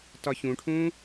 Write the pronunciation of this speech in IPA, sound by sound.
t ɒ ç ũ ʈʰ ũ

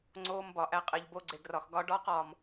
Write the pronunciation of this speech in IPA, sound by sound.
ŋ͡ǀ oː˧ m b ɒ˨ ʔ æ˧ qʼ e˨ ʎ b o˧ ɡ͡ǀ e˨ ɡ r ɒ˨ x ɡ ɒ˧ ɖ ɒː˦ q ɒː˨ m

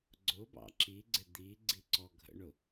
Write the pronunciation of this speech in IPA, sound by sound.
ɡ͡ǀ ʊ b ɑ̰ ǁ i ɡ͡ǀ ɪ d̪ i ɡ͡ǀ i ǀ ɔ ɡʱ ə̰ ɳ ʊ

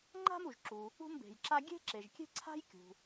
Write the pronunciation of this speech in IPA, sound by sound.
ŋ͡ǃ a̤˥ m u˩ ʒ ǁ u˩ | ṳ˥ m b e̤˩ j ǁ a˥ ɡʲ e̤˥ ǁ e˩ ʒ kʲ e̤˥ ǀʰ a̤˥ j kʲ ṳ˩

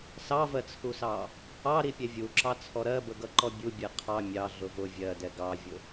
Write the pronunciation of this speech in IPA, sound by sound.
s ɑ v ɜ t͡sʰ u s ɑ | ɑ ɾ i pʲ ɛ vʲ u ǁ ɑ t͡sʰ ɔ ɾ ɜ b ə ɡ ʌ ǃ ɔ bʲ u bʲ ɛ qʰ ɑ mʲ ɑ ɮ ʊ v ʊ vʲ ɜ d ɛ ɡ ɑ vʲ ʊ

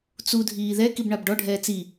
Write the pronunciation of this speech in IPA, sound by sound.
t͡s u dʱ iː ð ɛ k i b ɳ a b ɖ ɔ ɖʱ ɛː t͡s i

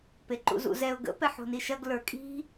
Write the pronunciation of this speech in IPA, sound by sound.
p e ǃ ṵ z ṵ z ɛ ʊ̯ ɡ ə̰ p ɛ ħ o̤ n i ʃ ɐ ɡ l ə˞ kʼ i̤

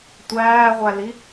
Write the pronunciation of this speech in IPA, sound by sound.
tʷ æː ʁʷ æ l i

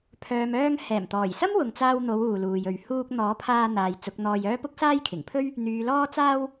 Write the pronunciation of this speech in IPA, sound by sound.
pʰ œː˨ m œː˧ ŋ h ɛː˨˩ m t̪ ɔː˨˩ j s ɐ˥ m w ʊ˨ ŋ t͡s aː˧ w n̪ o˨˧ w uː˨ l uː˨ j ɵ˨ ɥ h uː˧ k̚ n̪ ɔː˨˥ pʰ aː˧ n̪ aː˨ j t͡s ʊ˨˥ k̚ n̪ ɔː˧ j œː˥ p ʊ˥ k̚ s aː˥ j kʰ ɪ˨˩ ŋ pʰ ɵ˥ ɥ | n̪ yː˨ l ɔː˧ t͡s aː˧ w

